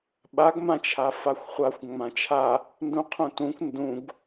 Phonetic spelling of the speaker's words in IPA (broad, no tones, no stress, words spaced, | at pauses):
ɓaɡmãt͡ʃʰa faxʷχʷaxʷ ŋ͡mãt͡ʃʰa | ndũqʰũtũkʷ ndũɡ